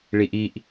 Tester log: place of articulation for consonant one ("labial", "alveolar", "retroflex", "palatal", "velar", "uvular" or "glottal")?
retroflex